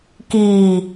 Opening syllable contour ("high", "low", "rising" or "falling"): low